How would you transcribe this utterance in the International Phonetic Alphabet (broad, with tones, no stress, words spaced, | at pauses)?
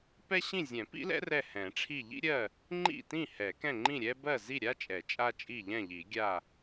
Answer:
pɛ˥ɕĩ˥˨ zʲɛ̃˨˩˦pḭ˥lɛ̰˥ rɛ˥˨hɛ̃˨˩˦ʈ͡ʂʰi˥˨ ʎḭ˥ɾʲɜ˥˨ | ŋ͡ǃḭ˥˨tĩ˥˨ hɛ˨˩˦kɛ̃˥˨ŋ͡ǃĩ˥˨ɾʲɛ˥ bɜ˥˨zi˥˨ɾʲa˥t͡ʃʼɛ˨˩˦ t͡ʃʼa˥t͡ʃʼi˥˨ʎɛ̃˥˨ʎi˨˩˦ ɡʲa˥˨